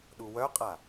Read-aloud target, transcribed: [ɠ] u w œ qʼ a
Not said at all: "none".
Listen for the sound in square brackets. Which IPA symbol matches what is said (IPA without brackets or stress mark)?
ɗ